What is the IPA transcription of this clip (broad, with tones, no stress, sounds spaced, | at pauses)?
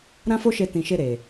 ɾ ã˦ f o˦ ʃ e˧ t ĩ˨ ʃ e˧ ɾ e˨